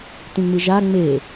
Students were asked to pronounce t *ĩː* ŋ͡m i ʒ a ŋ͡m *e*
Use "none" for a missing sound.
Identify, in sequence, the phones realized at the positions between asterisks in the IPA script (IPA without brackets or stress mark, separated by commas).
ĩ, e